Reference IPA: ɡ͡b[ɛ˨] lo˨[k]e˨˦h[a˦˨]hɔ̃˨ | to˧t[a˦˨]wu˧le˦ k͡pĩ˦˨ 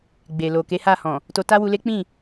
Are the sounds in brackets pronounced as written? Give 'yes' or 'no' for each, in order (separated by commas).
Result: no, yes, yes, no